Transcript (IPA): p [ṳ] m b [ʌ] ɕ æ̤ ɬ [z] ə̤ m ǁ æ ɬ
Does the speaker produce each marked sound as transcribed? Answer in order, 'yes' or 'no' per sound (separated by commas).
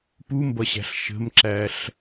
no, yes, no